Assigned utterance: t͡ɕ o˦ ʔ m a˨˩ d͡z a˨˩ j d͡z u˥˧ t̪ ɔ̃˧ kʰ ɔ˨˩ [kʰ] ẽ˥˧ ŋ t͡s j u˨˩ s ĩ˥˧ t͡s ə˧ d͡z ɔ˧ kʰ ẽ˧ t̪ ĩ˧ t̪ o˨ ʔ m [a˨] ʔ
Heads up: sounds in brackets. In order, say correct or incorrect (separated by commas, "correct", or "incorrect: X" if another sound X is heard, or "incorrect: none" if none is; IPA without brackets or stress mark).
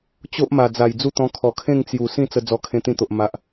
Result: correct, correct